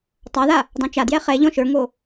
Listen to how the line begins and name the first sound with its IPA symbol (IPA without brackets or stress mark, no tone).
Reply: tˤ